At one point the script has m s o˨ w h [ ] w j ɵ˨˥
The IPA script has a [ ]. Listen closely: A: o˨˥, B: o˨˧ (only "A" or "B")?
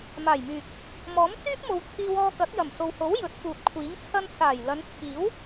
A